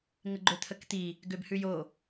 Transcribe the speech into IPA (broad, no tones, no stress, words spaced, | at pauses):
ŋəɡ͡ǃøt̪ʰəkt̪i | ɡøbhʉjo